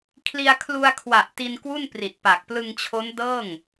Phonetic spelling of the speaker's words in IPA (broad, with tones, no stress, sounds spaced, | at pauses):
kʰ l i˧ a̯ kʰ l u˧ a̯ kʰ w a˨˩ ʔ t i˧ n k w u˥˩ n p r i˨˩ t̚ p a˨˩ k̚ p l ɯ˧ ŋ t͡ɕʰ o˦˥ n d ɤː˥˩ ŋ